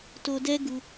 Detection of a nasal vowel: absent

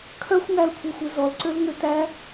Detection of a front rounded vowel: present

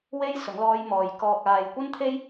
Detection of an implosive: absent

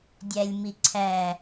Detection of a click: present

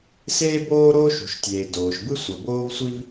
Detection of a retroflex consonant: absent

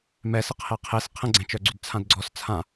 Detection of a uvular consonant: present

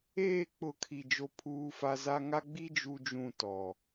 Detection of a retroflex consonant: absent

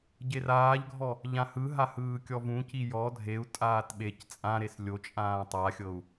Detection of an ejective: present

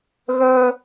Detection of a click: absent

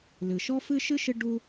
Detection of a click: absent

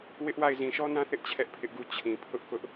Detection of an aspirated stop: present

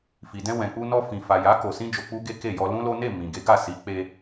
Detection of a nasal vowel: present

